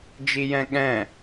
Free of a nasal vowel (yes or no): no